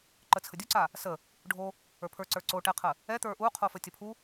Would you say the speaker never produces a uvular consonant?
no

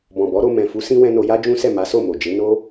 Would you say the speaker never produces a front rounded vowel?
yes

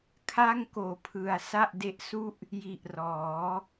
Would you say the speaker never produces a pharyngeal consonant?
yes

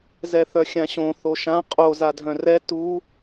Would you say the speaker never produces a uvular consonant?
no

